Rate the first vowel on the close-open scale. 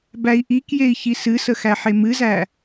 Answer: open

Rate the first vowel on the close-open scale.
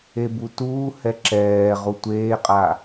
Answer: mid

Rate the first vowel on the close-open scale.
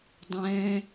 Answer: mid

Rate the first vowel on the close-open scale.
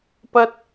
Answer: open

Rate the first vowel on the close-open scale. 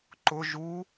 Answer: close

